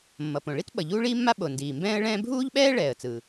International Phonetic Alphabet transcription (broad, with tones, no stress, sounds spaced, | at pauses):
mː ʌ˩ p õ˩ ɭ i˥ t ɓ ʌ˩ ʎ uː˥ ɭ iː˥ mː a˥ ɓ o˩ n d iː˩ m b ɛ̃ː˥ ə̯ ɭ ɛ̃ː˥ bʱ uː˥ ʎ ɓ ɛː˥ ɭ ɛː˩ ə̯ t͡s ɯ˩